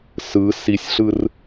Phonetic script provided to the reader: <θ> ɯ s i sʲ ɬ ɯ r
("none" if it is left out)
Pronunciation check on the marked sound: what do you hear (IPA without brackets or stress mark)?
s